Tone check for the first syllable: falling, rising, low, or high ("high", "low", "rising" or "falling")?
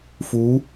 rising